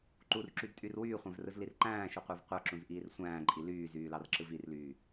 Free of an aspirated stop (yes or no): yes